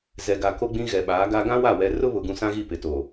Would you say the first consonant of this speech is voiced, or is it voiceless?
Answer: voiced